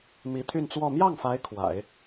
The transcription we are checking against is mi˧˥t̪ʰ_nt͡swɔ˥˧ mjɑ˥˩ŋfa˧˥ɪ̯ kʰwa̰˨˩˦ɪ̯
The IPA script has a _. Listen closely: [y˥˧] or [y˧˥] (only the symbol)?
y˥˧